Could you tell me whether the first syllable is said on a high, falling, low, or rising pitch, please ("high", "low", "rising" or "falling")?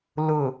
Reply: low